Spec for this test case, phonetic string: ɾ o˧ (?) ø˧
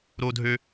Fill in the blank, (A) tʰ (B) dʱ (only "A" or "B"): B